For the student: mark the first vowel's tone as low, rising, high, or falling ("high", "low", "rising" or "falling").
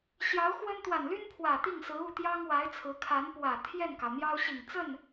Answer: rising